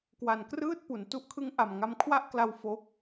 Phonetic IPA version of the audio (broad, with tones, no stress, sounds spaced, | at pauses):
k w a˨˩ n k r ɯː˥˩ t̚ p u˩˦ n t u˦˥ ʔ kʰ ɯ˦˥ ŋ ʔ a˨˩ m ŋ a˧ m kʰ w a˥˩ ʔ k l a˧ w f o˦˥ k̚